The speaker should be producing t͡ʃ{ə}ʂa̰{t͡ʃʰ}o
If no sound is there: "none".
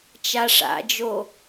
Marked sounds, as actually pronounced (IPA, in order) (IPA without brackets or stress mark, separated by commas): a, d͡ʒ